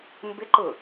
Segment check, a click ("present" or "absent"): present